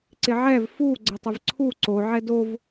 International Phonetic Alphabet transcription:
ǀɪʕɛv fu ɡ͡ǀətˤɪvǀʰu ǀo ʕɛdov

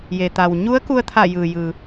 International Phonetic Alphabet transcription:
je˩t̪a˩w ɲu˧˥ə̯ku˧ə̯t̪ʰa˧˩ jɯː˩jɯː˩

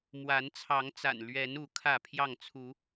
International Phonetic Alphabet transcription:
mwa˨˦nt͡sʰɑ˨˦ŋt͡sa̰˨˩n lɥɛ˨˦nu˨˦ kʰä˥˨pʰjɑ˥˨ŋt͡sʰu˨˦

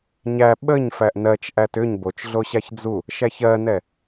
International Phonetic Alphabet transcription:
ɲæ ɓəɲ fæʔnɜt͡ʃ ʔætʏɲ bot͡ʃɮo ɕaçd͡zu | ʃæçɜnɛ

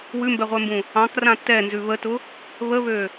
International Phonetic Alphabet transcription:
wʉmbɛʁʷɛmbũ | ɑ̃krã tɛnzʉ βətʊ | βəβø

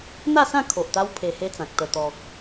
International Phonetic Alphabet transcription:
n̪a˥˧sã˥˧ kʰo˨ʔt̪a˦w pʰe˧he˦t͡sã˨k̚ t̪ə˨˩t̪ɔ˨k̚

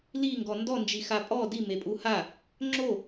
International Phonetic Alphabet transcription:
liŋɡɔ ndɔnd͡ʒixa pʼɔ dimepʼu ha | ŋ͡ǁo

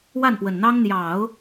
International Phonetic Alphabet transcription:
wa˥˩npwə˨˩nn̪ɑ˥ŋ n̪jɑ˨˩˦ʊ̯

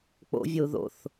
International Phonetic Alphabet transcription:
k͡po̰ vʲou̯ðo̰θ

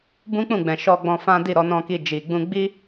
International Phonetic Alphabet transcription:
bũ˦k͡pũ˦˨ɡ͡bɛ̃˨ ʃɔ˧ɡ͡bɔ̃˧fã˦ di˦˨ɾɔ˧nɔ̃˧ki˧ d͡ʒi˨ ɡ͡bũ˧ ɡ͡bi˦

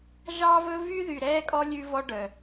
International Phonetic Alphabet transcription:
ʒɑː˦vɵ˦ vy˦ðy˨ɾɛː˦kʼɔ˦ lʲʉ˦vɔ˦ɖœ˨

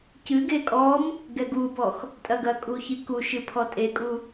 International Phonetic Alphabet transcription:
cɨɡe kʼɔm | ɡɛɡubɔx | tʼɐɡɐkʼu çikuʃɨ pʰɔtʼekʼu

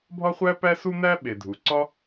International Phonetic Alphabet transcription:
bʱɒ˥χʷæ˥pæ˥ su˥n̪æ˥ ɓe˩dʱu˩ǀɒ˥

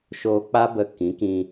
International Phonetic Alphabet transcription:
ʃoː˧k͡pa˦bə˧ kĩ˨˦kĩ˧

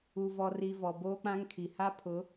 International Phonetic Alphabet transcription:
u˨vɔ˨ri˨ vɔ˨boː˦k͡pã˦ŋkʰi˨ ha˦pʰʊ˨˦

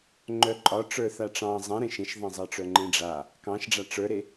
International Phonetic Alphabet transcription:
ŋ͡ǃœǃʼɒ ʈ͡ʂə˞θaʈ͡ʂɑ̃ zˤɛ̃ɾẽʃ ẽʃðˤɛ̃zˤɑʈ͡ʂœ ŋ͡ǃẽɖ͡ʐa | kɑ̃ʃɖ͡ʐa ʈ͡ʂə˞ɾe

